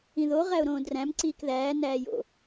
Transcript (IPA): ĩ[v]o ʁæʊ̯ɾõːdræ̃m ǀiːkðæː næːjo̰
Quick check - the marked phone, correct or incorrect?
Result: incorrect